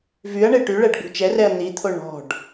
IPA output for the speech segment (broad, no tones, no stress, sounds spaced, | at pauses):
v y ɐ̯ ɳ e ʈ y ɭ ɛ ɖ ɡ͡b ṳ t͡ʃ ɛ r ɛ ɐ̯ n̪ i t̪ʰ o ɳ ɔ̤ ɖ